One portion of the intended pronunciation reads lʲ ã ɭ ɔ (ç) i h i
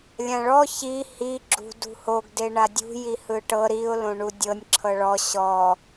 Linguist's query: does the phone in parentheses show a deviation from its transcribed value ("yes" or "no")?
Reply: no